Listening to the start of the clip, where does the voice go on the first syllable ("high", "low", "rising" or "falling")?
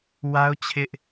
high